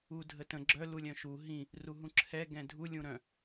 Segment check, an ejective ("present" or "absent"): absent